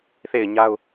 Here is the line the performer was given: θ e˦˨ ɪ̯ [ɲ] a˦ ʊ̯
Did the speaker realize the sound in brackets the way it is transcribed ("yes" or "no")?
yes